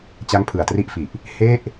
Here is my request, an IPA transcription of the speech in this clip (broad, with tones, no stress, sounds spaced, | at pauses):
t͡ɕ a˦˥ ŋ pʰ ɯ˨˩ a̯ t r i˦˥ ʔ f i˨˩ ʔ | h e˥˩ ʔ